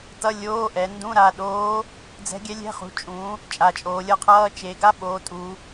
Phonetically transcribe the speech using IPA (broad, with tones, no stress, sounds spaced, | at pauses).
t ʌ˧˥˧ lʲ oː˧˥˧ ʔ ɛ˩˧ n d ũ˧˥˧ ɾ a˩˧˩ ɗ oː˧˥ | d͡z ɛ̤˧˥ ɡʲ ɛ˧˥ lʲ ɛ̤˧˥˧ χ ṳ˩˧˩ t͡ʃʼ ũ˩˧ | t͡ʃʼ a˩˧ t͡ʃʼ oː˩˧ lʲ ʌ˧˥ qʰ ʌː˧˥˧ t͡ʃ e˩˧ ɡ a˧˥˧ ɓ oː˩˧ tʼ u˩˧